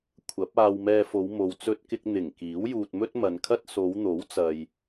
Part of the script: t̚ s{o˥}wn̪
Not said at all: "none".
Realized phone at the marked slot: o˨˧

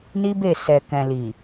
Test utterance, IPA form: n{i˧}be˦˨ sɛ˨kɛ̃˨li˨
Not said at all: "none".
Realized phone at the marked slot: i˦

